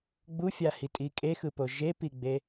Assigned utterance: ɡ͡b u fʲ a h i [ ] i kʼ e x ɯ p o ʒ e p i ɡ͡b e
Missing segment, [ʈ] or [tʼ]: tʼ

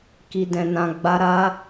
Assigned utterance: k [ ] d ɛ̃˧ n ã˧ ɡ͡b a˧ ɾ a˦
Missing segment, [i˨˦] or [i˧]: i˧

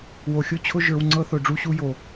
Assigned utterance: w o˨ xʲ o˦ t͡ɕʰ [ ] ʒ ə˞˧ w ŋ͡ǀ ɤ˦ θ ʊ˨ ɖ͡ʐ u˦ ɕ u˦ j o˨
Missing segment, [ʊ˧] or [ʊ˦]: ʊ˦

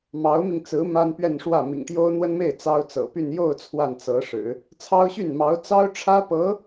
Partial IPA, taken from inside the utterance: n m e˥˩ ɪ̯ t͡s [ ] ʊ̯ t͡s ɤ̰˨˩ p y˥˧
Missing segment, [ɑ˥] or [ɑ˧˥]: ɑ˥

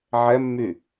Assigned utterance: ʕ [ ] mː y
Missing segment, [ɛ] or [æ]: ɛ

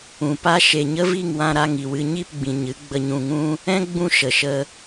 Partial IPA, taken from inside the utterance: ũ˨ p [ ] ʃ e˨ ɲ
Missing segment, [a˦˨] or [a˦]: a˦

